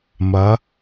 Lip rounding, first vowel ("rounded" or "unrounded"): unrounded